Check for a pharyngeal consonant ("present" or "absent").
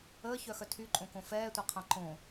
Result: absent